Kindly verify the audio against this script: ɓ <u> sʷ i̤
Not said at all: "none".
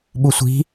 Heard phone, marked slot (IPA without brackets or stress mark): u